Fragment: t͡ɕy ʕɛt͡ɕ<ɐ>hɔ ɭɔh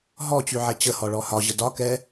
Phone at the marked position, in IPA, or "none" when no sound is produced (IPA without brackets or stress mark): ə